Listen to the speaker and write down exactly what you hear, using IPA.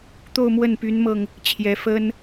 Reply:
t̪o˥˧ʊ̯mwə˥˩npy˧˥nmɤ˧ŋ | t͡ɕʰjɛ˧˥fə˥n

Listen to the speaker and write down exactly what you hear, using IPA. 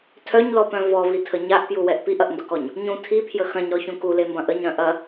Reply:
tʰœɲlɔpœ̃ vɔvitʰə ɲaʔpjuwɛʔ piʔɐʔndʊkɔɲ | ɲũ tʰipʰjə xɐ̃ɲɾɔçũ kulembɐ̃ ʔəɲɾœ̃ ʔɐ

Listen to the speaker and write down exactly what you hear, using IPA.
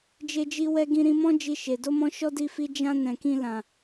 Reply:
d͡ʒe˧d͡ʒi˧wɛ˧ ɡĩ˧ɾĩ˧mɔ̃˦ d͡ʒi˧ʃe˨ do˧mɔ̃˧ ʃɔ˦di˦˨fi˧ d͡ʒã˧ nɛ̃˨kĩ˧lã˨

